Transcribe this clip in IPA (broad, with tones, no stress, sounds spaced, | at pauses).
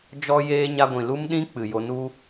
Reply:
d͡ʒ ɔ˦ j eː˦ ɲ a˧ ɡʷ ĩ˨ l u˦ m ɗ ĩ˦ k͡p ɨ˨ j o˧ n u˦